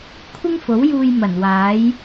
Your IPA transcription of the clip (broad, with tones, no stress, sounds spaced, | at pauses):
kʷʰ ɪ˥ ŋ f o˨˥ w j uː˧ j m ɐ˨˩ n w aː˨˥ j